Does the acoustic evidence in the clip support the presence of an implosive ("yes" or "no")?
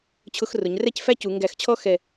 no